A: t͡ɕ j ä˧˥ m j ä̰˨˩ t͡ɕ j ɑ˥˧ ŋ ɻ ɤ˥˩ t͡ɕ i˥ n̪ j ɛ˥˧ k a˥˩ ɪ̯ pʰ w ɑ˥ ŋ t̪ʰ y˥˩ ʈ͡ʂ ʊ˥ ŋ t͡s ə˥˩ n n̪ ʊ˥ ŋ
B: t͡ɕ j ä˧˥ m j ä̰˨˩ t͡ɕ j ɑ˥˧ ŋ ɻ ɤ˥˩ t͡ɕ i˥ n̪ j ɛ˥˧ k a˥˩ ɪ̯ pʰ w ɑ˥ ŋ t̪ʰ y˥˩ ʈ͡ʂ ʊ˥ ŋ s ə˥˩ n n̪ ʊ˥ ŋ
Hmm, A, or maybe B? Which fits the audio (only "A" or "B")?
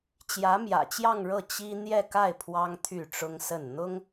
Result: B